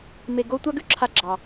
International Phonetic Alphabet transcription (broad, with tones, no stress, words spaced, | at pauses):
me˧ɡo˥ tʷa˥ɡʉ˥ǁʰa˧ɡ͡ǁɑ˩